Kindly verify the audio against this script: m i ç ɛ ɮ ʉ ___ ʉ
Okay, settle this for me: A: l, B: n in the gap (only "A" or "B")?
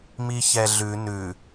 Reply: B